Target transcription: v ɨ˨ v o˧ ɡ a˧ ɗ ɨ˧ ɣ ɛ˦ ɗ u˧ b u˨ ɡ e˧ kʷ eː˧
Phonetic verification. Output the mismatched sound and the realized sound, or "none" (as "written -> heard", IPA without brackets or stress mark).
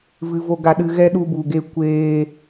none